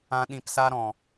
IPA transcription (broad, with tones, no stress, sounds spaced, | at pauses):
ã˧ ɗ ĩ˧ p s a˦ ɾ ɔ̃˨